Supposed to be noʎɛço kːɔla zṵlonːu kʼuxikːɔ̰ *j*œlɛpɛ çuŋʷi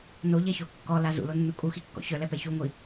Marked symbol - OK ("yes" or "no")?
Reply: no